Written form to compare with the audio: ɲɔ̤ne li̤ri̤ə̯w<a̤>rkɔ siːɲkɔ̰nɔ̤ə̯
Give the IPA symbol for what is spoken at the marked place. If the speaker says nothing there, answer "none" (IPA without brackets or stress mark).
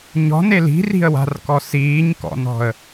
a̤